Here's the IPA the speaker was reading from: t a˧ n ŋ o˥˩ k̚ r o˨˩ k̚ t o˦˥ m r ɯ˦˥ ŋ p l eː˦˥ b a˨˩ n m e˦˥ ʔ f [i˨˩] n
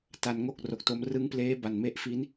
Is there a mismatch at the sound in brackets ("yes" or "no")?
yes